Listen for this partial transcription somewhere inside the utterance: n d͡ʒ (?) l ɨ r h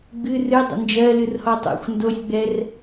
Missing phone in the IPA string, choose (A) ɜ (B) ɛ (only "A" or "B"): A